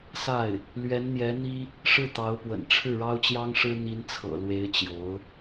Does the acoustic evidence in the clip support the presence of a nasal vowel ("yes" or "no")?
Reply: no